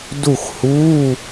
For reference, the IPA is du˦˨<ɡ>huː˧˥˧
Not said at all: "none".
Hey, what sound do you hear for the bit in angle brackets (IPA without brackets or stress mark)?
x